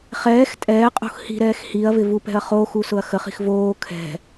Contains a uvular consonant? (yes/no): yes